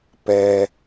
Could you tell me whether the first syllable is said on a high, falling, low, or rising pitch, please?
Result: low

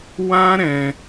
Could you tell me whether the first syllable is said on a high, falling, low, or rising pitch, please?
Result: high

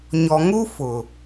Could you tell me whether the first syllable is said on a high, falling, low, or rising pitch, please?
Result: low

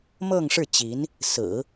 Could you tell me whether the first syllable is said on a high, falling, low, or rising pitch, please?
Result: falling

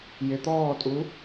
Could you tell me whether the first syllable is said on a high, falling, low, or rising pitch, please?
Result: rising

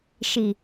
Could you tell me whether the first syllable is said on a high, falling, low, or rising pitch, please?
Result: low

